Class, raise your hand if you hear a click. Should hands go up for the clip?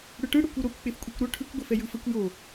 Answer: no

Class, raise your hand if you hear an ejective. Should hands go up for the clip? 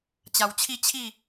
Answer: no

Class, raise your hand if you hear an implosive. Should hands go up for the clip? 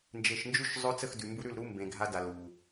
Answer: no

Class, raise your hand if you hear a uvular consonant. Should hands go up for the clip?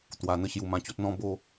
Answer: no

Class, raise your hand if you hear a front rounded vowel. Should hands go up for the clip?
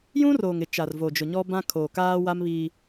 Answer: no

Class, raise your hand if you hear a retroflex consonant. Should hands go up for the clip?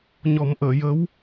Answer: no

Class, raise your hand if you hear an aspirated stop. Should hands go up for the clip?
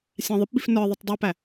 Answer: no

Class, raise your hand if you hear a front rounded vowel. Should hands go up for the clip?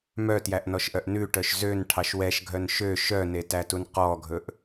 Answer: yes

